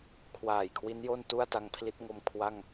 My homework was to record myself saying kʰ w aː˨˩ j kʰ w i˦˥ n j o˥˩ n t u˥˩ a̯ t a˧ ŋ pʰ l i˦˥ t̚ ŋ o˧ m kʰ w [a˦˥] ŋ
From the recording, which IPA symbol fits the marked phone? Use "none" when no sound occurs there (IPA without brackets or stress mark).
a˥˩